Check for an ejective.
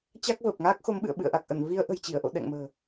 absent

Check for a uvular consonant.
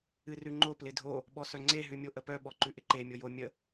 absent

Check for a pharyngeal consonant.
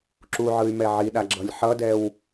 present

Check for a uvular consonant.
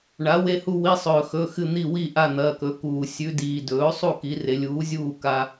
absent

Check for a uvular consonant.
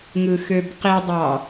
present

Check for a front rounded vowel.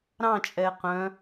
present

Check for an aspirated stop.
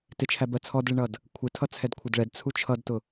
present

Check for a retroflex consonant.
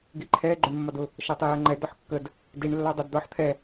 present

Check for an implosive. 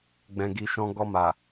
absent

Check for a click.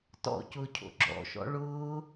present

